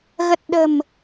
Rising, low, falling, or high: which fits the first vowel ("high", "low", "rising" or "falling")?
low